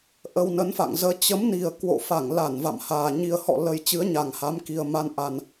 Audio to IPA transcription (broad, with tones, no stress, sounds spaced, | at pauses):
ʔ ə˧ w n ə˨˦ n f a̰˧˨ ŋ z əː˧ t͡ɕ ə˨˦ m n i˨˩ ə̯ k w o̰˧˨ f a˧˩ ŋ l a˧˩ n v a̰˧˨ m h aː˨˩ ɲ i˨˩ ə̯ h ɔ̰˧˨ l ə˨˩ j t͡ɕ ɨ˨˦ ə̯ ɲ a˨˩ ŋ h a˨˦ m k i˨˩ ə̯ m a˧ n ʔ a˨˩ n